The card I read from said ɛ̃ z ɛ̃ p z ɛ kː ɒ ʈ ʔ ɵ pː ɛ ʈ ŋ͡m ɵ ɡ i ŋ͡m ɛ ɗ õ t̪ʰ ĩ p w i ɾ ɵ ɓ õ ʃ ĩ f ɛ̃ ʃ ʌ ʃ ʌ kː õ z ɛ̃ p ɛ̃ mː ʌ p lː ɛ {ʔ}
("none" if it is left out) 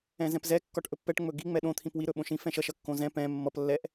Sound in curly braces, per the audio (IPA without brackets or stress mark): ʔ